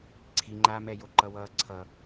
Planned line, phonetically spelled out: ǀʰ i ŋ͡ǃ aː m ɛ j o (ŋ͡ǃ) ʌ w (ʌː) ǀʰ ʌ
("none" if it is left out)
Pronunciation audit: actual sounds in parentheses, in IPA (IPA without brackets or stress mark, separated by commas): ǃ, ʌː